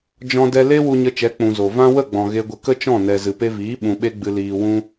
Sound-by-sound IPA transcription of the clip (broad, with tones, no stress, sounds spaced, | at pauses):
d͡ʒ ɔ̃˧ d ɛ˧ l e˧ w u˧ ɲ ə˧ t͡ʃ ɛ˨˦ k͡p ũ˨ z o˨ v ã˦ w ə˦˨ ɡ͡b ɔ̃˨ ɣ e˧ ɡʷ ə˧ k ə˦ t͡ʃ ɔ̃˦˨ n ɛ˨ z ɨ˨ p e˧ v iː˨˦ ɓ ũ˧ ɓ e˦ ɡ͡b ɨ˧ l iː˧ w ũ˦